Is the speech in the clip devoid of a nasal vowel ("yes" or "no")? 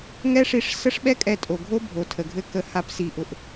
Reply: yes